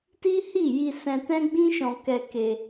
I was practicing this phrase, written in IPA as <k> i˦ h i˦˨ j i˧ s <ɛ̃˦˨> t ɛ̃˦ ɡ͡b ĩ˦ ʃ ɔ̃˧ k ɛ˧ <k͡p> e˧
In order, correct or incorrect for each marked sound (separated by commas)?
incorrect, incorrect, incorrect